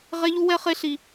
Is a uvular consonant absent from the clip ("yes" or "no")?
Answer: no